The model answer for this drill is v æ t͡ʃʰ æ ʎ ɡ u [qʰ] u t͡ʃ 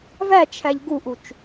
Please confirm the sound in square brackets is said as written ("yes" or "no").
no